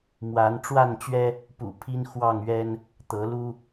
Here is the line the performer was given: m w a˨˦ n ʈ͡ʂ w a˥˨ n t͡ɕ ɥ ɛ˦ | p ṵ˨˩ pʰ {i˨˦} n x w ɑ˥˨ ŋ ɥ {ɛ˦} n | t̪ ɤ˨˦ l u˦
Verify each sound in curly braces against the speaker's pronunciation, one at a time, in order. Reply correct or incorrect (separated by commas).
incorrect, correct